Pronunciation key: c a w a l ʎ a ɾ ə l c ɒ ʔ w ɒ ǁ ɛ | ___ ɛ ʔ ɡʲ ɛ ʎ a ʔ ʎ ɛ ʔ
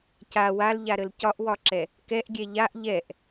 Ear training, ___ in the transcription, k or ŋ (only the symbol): k